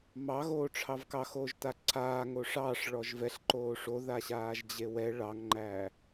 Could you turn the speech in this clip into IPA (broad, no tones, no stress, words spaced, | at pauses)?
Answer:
mɑ ɣoːʈ͡ʂʰɑvkɑ xoːʒtaǀʰaː ŋoʂɑːʂ ɭɔʒvɛɬ ǃoːʂo ðaɕaːʒd͡ʑewɛ ɭɑŋŋ͡ǃæ